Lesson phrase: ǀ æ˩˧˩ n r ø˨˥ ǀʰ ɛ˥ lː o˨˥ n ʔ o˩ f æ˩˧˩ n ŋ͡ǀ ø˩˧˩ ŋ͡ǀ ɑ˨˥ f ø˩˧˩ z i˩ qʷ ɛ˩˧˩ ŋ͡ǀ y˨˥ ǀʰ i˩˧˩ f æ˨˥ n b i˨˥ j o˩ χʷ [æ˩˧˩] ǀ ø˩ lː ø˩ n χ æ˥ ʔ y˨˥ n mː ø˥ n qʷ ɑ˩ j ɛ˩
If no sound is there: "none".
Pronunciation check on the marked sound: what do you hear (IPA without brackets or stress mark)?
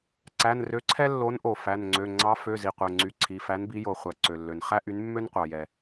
æ˩